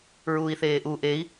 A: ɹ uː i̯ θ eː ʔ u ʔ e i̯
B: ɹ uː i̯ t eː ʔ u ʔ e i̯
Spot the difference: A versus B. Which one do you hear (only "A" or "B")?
A